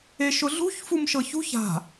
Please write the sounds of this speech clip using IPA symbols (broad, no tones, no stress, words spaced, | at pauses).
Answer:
eʃʊɮṳç fumʃɤçṳç a̤